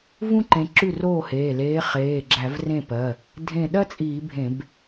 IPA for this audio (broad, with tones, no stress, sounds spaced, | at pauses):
v ũ˥ ǃ ẽ˨˦ ǁ ʉ˥˩ r oː˥˩ h eː˩˧˩ l eː˨˦ χ eː˩˧˩ ɡ͡ǁ æ˧˩˧ v r ẽ˥˩ p ɜ˩˧˩ | dʱ ẽ˧˩ ɗ ɜ˥ t͡sʼ iː˧˩˧ bʱ ẽ˧˩˧ b